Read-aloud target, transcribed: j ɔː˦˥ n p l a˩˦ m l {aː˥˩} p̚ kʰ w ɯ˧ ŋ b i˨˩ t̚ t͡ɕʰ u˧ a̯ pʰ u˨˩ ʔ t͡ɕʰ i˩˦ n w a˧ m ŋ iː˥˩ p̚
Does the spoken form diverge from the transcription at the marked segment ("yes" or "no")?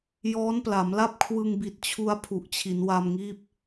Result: yes